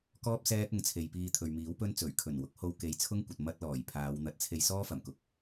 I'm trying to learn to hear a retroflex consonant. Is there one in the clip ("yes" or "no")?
no